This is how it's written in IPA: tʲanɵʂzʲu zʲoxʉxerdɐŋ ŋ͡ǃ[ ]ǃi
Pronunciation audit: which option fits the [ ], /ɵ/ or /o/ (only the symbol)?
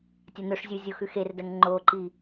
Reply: o